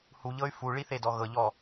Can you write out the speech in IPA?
huʎɤy̯ fuɭiθedɔ ɣɤʎɔ

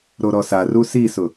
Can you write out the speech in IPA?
ɾoɾɔsaru sisʊ

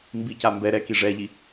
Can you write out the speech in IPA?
mbica mbɛ ɾɛki ʐɛʎi

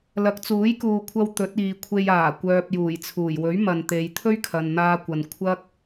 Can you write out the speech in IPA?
lɐ˨˥k̚t͡suː˨˥jkuː˨kʷʰɐ˧w t̪ɵ˨˥t̚ iː˨kʷʰe˧j aː˨˩ kʷœː˨p̚juː˨˩jt͡sʰuː˨˩jwɵ˨˥ɥ mɐ˨nt̪e˨˧j t̪ʰɵ˥ɥkʰɐ˨nn̪aː˧kʷɐ˨n kʷʰɐ˥k̚

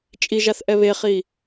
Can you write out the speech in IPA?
t͡ʃʼiʒaθ ʔɛβeχi

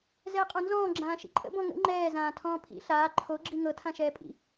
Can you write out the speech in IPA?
zɛːqʼɔ̃nzɔ̃ː ɡ͡ǁãːʃḭǃʼə̰ bɔ̃ŋə̰ ŋ͡ǃɛː zãːtʰɔ̃ːpʰḭ ɬaː ǃʰo ɡ͡ǁiŋɤ tʰãʃɛːpʼḭ

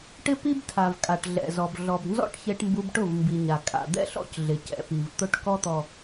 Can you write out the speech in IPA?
ʈɪ˦ pi˦btʰa˨v kʼa˨ʈɮɛ̰˨zɔ˨b ɮɔ˨bnzɔ̰˦ʈ çe˦ʈmbu˦b ʈʊ˦˨vmbi˨ɲa˨ kʼa̰˨d̪ɛ̰˦ɬɔ̰˦cɮɪ˨ cɛ̰˨pi˨v t̪ʊ˦ʈ kɔ˦t̪ɔ˨

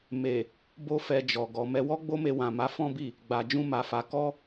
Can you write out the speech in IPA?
me˨ | bo˦fɛ˧d͡ʒɔ˨ ɡɔ˨mɛ˧wɔ˦ ɡ͡bo˦me˧wã˨ma˨˦ fɔ̃˦bi˦˨ | ɡ͡ba˨d͡ʒũ˧ma˨fa˨ kɔ˧

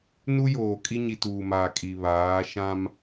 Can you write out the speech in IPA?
nu˦joː˨ kʼi˦ɲi˨tuː˨maː˨ kʼi˨ βaː˨˦ ʃã˦m

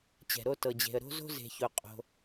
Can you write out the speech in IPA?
t͡ɕɛ̤˧ɾo˥ tɤ˧d͡ʑe̤˧ə̯ɾo̤˥ zo̤˥ze̤˧ço˧ qʼo̤˧

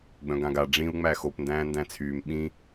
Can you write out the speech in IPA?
ɡ͡bœ̃ɡãɡa ɖ͡ʐĩu̯ ŋ͡mæxop ndæ̃ːndæ̃t͡sʰyːm ɓĩ

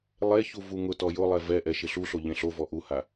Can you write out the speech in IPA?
lˠeçu vuŋʊtɔ jʊlˠɛ vɛʔɛ ʃɪɬuɬo ʎẽɬovɔ ʔuha

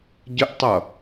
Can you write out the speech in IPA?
ɟəʔtˤʌ

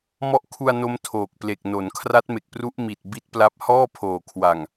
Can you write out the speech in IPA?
mɔ˥˩ʔ kʰu˧a̯ no˦˥mtʰoː˨˩k̚ple˨˩k̚no˩˦n kʰra˦˥t̚me˨˩k̚pru˦˥ʔ mi˨˩t̚ bi˦˥t̚pla˦˥p̚ hɔː˥˩pʰoː˨˩kʰwa˨˩ŋ

